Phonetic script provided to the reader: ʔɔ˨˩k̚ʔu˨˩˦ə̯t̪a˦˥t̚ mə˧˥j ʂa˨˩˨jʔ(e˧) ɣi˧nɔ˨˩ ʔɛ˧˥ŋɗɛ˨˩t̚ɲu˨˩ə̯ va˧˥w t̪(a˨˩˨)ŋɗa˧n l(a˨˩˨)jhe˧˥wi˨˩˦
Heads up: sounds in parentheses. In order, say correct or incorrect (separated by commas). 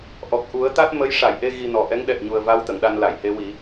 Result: correct, incorrect, correct